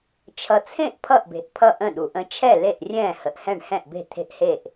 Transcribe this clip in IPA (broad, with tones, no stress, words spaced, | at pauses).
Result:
t͡ʃʰʌ˨t͡sʰẽ˥˩ʔ pʰʌ˥˩ʔbe̤˨ʔ pʰʌ˥˩ʔə̃˥˩ɗu˨ʔə̃˦ t͡ʃʰɛ˥˩ le˥˩ʔrʲɛ̃ː˥˩hə˨ʔ hɛ̃˥˩ɳhɛ̃˥˩ʔbe̤˥˩ t̪ʰe̤˥˩ʔhe˥˩ʔ